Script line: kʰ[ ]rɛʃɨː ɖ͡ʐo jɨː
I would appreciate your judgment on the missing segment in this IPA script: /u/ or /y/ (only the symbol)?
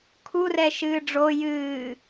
u